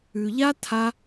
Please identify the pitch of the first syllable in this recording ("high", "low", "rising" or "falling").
low